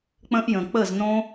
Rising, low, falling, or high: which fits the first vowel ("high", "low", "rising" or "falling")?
high